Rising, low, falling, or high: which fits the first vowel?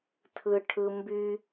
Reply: high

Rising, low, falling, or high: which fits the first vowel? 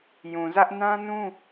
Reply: low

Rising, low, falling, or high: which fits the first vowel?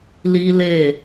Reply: high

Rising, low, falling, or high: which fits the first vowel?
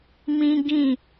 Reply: high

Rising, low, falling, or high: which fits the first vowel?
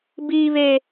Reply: high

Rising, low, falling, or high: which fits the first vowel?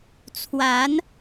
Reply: rising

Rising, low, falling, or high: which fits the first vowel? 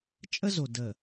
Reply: high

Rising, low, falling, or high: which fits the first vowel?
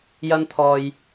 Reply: high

